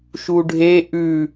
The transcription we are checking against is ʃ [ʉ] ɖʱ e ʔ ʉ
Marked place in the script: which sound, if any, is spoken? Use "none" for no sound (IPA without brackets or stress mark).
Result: u